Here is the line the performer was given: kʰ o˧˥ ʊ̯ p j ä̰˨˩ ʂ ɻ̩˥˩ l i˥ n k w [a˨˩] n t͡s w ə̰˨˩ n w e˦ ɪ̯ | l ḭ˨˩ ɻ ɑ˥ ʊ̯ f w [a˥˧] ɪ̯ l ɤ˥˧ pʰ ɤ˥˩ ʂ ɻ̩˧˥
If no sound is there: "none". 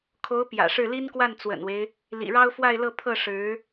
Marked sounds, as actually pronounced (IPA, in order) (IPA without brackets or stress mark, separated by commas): a˥˩, a˥˧